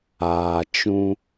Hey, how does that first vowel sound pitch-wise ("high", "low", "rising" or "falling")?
low